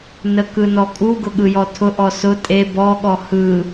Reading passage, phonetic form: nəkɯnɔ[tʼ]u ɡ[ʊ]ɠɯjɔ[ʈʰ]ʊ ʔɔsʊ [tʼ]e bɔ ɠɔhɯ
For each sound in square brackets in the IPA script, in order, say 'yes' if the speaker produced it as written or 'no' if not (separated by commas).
no, yes, no, yes